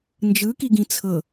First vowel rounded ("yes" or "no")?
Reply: no